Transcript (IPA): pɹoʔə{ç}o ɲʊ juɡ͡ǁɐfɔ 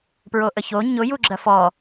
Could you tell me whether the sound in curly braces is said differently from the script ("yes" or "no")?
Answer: no